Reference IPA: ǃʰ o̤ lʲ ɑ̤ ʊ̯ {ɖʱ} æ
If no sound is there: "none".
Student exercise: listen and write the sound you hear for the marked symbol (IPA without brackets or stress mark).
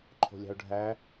ɖʱ